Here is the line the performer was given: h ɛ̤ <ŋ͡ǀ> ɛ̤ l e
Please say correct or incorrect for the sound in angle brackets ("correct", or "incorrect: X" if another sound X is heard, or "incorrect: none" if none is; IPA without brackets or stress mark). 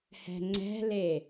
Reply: correct